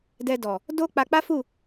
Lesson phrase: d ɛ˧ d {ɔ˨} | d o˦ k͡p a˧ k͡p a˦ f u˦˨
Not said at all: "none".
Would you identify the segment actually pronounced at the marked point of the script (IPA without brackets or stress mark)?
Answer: ɔ˨